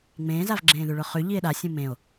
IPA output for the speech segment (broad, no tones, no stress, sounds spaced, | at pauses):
ŋ͡m ẽː z a v ɡ͡ǁ ẽː ð ʉ ɭ ʊ χ ʉ ʎ i e̯ ɗ a sʲ ũ m ẽ o̯